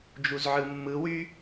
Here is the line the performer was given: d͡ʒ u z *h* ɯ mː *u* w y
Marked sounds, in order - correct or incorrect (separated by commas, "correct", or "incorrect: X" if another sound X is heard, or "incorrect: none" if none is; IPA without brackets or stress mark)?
incorrect: ʕ, incorrect: ɯ